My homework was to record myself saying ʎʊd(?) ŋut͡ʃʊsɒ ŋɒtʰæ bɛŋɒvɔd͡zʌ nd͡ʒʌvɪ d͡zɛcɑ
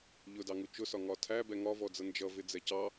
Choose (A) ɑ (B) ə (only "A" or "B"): A